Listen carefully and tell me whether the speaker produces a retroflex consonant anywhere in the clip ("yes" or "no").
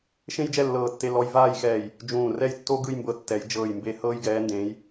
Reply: no